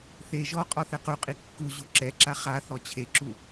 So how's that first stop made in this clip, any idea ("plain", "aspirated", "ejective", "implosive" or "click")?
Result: ejective